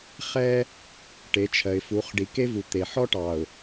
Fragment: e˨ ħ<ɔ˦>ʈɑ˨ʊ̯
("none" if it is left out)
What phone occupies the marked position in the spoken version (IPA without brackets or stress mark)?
ɔ˦